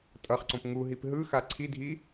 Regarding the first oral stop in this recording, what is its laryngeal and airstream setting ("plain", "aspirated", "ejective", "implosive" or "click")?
ejective